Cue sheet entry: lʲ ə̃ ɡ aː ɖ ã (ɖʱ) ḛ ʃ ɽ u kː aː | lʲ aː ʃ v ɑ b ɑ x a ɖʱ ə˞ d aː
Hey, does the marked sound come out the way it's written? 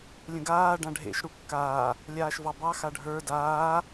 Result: yes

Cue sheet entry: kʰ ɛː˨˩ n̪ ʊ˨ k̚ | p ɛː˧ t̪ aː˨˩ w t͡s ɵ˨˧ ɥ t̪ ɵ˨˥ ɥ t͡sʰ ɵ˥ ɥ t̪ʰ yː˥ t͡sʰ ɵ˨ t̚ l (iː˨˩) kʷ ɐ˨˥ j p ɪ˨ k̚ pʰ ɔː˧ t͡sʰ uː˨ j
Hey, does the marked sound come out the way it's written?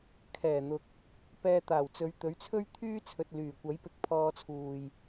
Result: no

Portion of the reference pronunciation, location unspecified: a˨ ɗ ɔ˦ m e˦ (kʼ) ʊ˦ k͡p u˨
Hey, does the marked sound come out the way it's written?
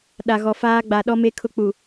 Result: no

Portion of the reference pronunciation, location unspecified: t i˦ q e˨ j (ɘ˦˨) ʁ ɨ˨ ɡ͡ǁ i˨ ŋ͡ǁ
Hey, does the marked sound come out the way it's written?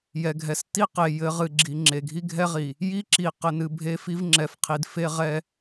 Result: no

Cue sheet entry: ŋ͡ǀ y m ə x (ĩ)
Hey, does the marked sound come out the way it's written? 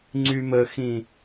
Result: yes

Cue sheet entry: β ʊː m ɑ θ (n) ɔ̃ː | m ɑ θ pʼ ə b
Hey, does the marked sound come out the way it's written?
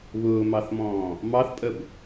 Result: no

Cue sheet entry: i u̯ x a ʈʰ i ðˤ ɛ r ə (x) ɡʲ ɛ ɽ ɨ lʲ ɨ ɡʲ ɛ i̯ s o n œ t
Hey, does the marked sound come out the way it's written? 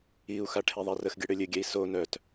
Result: yes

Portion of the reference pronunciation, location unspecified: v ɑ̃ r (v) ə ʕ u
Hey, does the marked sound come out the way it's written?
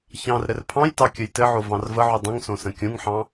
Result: yes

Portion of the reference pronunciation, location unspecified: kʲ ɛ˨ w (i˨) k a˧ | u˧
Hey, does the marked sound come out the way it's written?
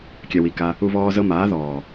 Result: yes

